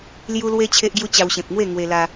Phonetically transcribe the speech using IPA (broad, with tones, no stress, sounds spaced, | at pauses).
l j u˦ l w e˦ t͡ɕʰ e˦ ʔ ɡ j u˦ t͡ɕ a˧ w ɕ ẽ˨ p̚ ŋ w e˥˧ ŋ w e˧ l a˧